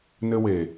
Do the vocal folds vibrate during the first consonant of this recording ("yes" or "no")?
yes